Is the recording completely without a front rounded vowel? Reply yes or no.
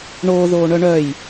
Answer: no